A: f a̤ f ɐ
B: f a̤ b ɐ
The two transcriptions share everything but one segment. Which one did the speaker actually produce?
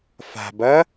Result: B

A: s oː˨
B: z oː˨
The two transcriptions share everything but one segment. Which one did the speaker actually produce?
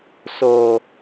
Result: A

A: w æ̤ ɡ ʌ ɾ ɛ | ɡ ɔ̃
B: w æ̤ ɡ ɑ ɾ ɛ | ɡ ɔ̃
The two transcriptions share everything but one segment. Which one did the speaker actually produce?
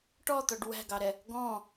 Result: B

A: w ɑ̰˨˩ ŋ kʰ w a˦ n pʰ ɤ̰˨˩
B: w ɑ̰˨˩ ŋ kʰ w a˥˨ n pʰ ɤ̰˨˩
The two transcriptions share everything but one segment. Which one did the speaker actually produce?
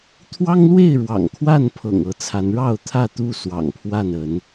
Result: B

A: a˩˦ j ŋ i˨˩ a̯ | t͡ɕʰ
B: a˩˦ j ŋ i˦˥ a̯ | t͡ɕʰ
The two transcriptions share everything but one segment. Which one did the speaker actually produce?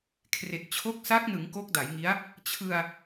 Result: B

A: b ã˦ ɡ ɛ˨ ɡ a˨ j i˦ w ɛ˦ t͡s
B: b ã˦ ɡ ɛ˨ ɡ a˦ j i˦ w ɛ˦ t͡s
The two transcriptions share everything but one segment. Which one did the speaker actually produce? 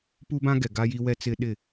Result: B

